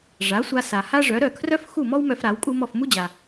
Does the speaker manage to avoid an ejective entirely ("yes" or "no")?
no